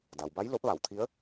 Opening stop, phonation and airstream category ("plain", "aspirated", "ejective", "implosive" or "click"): plain